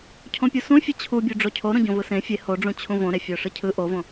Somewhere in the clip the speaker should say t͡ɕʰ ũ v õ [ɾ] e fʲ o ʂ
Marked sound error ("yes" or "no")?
no